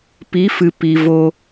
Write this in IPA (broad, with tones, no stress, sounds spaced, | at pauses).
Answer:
p i˨˦ f ɨ˨ p i˨ v o˧